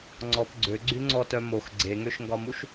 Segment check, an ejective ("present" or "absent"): absent